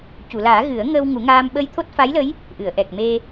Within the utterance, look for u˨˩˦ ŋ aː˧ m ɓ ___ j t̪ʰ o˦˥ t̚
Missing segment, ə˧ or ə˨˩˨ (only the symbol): ə˧